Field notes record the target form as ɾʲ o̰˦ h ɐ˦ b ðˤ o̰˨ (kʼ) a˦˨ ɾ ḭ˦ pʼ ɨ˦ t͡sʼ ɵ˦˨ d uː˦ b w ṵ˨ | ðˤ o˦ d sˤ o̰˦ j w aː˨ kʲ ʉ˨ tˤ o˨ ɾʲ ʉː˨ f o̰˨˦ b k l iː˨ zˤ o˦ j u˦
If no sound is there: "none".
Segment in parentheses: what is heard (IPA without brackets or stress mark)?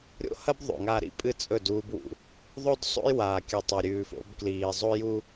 ŋ